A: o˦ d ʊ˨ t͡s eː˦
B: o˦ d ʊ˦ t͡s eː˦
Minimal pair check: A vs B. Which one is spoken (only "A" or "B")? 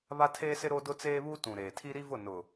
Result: B